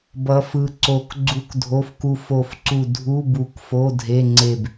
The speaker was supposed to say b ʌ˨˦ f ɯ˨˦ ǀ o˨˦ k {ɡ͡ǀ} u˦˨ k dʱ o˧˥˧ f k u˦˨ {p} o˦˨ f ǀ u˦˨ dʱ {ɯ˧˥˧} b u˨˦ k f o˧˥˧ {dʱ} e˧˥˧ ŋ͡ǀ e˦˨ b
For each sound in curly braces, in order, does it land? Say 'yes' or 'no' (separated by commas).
yes, no, no, yes